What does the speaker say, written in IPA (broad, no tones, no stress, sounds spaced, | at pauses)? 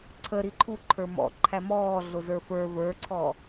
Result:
ǀʰ ə ɾ i ǃʰ u ǃʰ ə˞ m ɔ̰ ǃʰ æ m ɔː ɮ ʊ z ə˞ f ə˞ v ə˞ ǀʰ ɔ